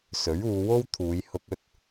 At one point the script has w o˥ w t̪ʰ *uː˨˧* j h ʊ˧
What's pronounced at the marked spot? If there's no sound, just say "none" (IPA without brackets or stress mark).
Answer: uː˨˧